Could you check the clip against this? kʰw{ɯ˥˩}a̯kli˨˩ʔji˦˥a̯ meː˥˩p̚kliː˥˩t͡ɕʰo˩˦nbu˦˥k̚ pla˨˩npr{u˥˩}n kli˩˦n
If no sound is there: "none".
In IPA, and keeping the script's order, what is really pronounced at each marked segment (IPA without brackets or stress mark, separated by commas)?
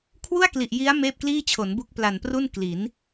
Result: u˥˩, u˥˩